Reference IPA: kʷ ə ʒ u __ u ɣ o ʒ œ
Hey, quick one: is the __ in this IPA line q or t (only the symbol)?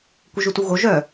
t